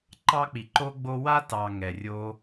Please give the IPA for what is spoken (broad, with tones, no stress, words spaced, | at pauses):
ǃɑ˦k͡pi˨ǃo˦ ɡ͡bo˧wa˦ tɑ˨ ŋɛ˨rʲo˦